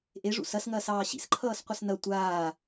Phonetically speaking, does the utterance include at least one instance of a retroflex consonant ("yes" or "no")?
yes